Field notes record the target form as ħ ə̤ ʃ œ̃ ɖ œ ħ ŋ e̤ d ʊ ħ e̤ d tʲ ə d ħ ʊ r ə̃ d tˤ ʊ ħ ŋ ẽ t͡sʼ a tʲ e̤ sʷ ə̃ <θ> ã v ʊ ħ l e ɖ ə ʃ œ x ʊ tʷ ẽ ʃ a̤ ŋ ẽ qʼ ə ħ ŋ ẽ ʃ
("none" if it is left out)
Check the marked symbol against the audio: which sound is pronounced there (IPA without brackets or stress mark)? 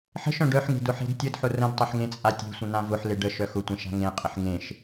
n̪